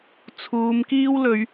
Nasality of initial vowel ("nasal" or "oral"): oral